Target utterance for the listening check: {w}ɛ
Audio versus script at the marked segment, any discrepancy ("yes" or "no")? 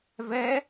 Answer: yes